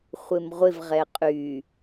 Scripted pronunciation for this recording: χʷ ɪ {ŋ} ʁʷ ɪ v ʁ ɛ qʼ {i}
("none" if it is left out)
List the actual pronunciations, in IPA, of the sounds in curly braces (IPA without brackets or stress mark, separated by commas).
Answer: m, y